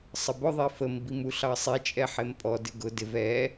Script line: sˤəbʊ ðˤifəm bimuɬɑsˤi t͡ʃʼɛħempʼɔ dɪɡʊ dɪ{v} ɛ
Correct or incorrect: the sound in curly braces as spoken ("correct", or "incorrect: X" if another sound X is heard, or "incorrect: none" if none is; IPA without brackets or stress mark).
correct